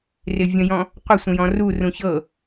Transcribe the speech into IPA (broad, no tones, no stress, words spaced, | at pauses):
rɪvʲə̃jɔ̃ | qʷɪsʷə̃jɔ̃ rurũ çɤ